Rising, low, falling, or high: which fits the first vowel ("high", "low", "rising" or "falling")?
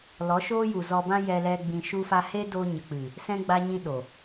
rising